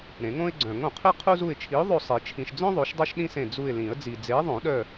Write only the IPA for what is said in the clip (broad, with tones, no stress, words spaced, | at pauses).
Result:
ɾẽ˨˩˦ŋõ˥ɪ̯ɡ͡ǀœ̃˨˩˦ŋõ˨˩˦ qʰi˥qʰu˥ zu˦˨ɪ̯t͡ʃʰi˨˥ʊ̯ðˤo˦˨ sˤi˨˩˦ t͡ʃʰĩ˨ʃd͡zœ̃˥ ðˤo˨˥ʃdˤœ˥ʃɗĩ˥sẽ˦˨ d͡zu˦˨ɪ̯lĩ˨˩˦ə̯ d͡zi˨d͡ze˨˥ðˤõ˨˩˦ɗœ˦˨